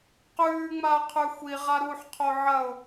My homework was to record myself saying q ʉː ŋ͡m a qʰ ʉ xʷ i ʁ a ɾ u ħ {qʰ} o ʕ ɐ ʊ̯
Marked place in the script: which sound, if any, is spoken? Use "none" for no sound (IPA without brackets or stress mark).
qʰ